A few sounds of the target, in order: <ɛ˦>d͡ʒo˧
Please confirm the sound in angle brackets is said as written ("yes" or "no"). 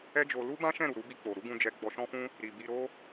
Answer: yes